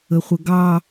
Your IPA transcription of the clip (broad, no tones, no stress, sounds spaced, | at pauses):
ə χʷ ə ɡ ɑ